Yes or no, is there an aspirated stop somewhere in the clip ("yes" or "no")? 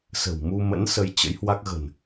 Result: no